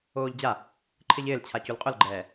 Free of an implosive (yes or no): yes